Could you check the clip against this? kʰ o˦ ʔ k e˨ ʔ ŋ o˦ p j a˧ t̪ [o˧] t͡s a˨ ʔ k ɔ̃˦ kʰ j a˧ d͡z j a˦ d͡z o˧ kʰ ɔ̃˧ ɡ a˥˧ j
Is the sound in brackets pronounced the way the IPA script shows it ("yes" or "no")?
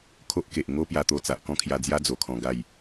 yes